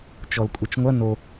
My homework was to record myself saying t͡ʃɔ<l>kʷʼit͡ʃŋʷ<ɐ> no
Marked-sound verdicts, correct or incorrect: correct, correct

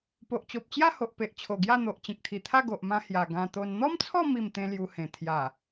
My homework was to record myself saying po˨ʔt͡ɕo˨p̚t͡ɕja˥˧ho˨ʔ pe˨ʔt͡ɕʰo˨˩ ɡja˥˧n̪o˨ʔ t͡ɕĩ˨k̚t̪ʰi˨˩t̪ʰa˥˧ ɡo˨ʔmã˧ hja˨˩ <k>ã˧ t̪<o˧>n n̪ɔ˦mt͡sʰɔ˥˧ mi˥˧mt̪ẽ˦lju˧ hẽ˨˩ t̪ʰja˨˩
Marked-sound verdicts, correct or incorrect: incorrect: ɡ, correct

